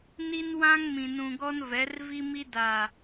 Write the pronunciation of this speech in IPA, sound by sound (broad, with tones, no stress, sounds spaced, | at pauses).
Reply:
n i˦ n w ã˦ ŋ m ĩ˨ n ũ˨ ɡ ɔ˦ n v ɛ˨˦ r v i˦ m i˦ d a˨